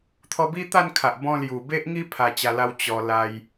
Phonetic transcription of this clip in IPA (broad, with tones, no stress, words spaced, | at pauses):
t̪ʰɔ˧bi˦t̪a˥˧n kʰa˨ʔ bɔ̃˧lju˨˩be˦ʔŋi˦ pʰa˧t͡ɕa˧la˦w t͡ɕɔ˧ la˧j